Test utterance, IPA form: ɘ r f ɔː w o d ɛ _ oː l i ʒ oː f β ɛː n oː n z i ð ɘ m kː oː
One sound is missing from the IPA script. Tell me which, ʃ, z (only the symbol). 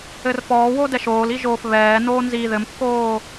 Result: ʃ